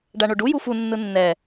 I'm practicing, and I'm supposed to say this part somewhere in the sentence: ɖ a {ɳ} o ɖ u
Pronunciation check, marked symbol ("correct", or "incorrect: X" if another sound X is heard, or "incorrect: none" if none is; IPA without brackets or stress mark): correct